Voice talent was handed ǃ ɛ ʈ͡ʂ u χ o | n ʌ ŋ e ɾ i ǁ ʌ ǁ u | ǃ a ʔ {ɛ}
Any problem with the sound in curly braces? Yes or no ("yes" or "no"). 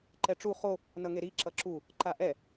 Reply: no